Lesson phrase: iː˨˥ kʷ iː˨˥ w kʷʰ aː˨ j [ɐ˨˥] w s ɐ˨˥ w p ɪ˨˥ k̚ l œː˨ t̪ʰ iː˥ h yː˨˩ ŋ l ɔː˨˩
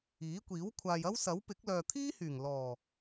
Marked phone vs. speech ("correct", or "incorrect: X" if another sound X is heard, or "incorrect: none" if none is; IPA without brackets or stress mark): incorrect: ɐ˥